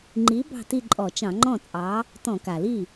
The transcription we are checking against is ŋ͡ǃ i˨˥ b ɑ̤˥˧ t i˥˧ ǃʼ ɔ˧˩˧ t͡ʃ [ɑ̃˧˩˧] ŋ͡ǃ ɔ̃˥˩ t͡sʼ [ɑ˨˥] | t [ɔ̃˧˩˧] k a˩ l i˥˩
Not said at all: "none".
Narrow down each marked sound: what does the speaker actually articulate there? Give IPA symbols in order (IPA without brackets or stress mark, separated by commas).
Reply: ɑ̃˧˩˧, ɑ˨˥, ɔ̃˧˩˧